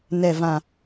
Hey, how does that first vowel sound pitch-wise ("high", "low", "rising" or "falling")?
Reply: falling